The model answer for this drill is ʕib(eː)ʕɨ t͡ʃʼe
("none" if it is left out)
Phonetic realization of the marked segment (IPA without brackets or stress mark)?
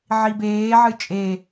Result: eː